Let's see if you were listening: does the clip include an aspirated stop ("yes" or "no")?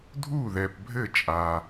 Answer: no